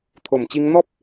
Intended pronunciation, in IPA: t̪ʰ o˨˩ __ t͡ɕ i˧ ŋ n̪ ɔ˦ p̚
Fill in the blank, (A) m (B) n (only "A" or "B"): A